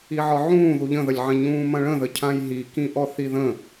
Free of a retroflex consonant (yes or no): no